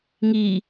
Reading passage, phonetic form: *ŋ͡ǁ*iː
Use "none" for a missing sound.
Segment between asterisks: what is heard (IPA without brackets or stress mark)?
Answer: ŋ